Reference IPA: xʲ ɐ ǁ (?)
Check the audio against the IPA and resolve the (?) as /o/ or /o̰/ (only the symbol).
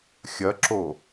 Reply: o